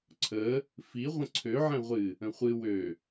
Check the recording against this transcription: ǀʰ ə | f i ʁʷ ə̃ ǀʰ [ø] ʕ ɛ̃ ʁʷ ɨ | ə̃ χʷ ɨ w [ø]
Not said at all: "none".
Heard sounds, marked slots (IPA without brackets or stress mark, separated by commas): ø, ø